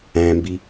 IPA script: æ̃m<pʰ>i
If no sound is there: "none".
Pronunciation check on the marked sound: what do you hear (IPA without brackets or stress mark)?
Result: b